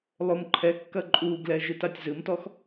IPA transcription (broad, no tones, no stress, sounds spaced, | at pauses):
lˠ o m ǃʰ ɛ kː ɐ ǃʼ u ɡ l ɛ ʒ ɨ t a tʲ z ɨ m t ɔ x